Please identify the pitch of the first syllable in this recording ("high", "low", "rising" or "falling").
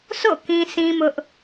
falling